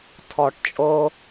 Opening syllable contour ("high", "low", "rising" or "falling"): low